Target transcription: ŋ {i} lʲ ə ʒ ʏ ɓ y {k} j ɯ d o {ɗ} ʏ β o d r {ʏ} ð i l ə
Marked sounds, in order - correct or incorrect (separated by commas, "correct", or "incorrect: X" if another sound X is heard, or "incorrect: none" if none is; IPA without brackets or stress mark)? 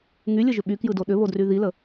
incorrect: y, correct, correct, incorrect: y